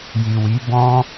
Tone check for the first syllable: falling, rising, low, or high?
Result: low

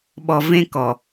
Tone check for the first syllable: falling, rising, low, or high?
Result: low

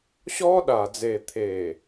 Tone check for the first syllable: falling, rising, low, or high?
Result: high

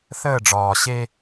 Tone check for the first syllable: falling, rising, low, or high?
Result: falling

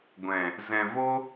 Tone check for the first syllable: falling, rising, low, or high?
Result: low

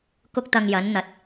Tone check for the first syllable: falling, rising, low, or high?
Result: high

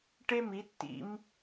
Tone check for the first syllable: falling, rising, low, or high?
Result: high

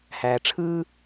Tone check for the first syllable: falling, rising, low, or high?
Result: low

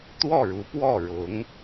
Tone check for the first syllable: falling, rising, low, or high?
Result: falling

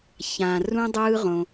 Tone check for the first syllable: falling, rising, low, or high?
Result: low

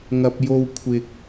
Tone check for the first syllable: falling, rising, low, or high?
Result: low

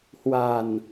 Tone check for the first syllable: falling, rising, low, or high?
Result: low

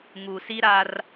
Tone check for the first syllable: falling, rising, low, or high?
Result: low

